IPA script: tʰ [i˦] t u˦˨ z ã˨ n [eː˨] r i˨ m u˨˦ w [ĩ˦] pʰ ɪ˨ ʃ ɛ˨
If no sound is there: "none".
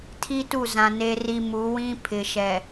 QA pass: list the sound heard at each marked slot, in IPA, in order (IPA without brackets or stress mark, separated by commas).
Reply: i˦, e˨, ĩ˦